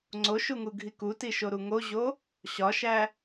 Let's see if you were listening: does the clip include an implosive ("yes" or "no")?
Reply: no